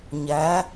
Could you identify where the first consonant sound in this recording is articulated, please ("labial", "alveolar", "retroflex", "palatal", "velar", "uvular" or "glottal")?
palatal